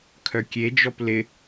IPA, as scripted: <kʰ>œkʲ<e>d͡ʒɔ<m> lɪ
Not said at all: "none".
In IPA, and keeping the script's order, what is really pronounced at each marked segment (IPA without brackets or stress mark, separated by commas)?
kʰ, e, p